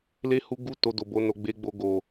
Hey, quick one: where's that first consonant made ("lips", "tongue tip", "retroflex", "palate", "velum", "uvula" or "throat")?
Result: tongue tip